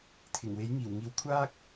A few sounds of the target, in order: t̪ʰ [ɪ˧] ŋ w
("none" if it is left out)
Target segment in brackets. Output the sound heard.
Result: ɪ˨˩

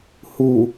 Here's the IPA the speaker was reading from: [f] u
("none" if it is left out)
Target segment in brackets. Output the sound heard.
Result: h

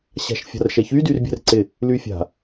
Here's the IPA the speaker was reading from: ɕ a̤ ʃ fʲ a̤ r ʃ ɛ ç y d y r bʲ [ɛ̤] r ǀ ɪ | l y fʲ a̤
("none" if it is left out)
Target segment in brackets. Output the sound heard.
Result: ɛ̤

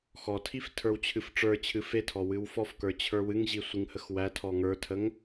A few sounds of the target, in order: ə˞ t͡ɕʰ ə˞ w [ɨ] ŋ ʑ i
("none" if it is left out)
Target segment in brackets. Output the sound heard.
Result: ɨ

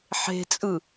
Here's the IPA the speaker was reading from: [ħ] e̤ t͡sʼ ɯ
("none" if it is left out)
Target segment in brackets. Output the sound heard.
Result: ħ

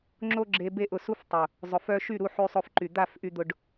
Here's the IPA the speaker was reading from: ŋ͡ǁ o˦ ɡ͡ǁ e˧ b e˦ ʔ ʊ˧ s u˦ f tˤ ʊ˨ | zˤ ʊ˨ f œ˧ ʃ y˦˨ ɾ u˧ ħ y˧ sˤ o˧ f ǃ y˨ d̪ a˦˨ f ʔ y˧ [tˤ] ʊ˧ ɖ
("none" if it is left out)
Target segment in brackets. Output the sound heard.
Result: d̪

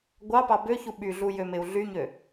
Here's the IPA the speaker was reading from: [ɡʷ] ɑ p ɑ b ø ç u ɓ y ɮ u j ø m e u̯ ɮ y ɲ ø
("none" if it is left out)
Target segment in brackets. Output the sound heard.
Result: ɡʷ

